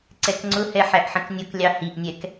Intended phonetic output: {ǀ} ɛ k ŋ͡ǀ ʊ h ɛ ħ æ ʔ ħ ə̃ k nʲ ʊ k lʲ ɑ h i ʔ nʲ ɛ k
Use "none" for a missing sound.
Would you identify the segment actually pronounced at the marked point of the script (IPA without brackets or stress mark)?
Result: ǀ